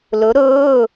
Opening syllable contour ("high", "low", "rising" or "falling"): rising